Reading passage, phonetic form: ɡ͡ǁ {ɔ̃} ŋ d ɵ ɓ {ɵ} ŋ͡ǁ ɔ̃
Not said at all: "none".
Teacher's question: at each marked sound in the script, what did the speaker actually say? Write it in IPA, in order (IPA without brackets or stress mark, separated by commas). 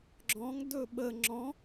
ɔ̃, ə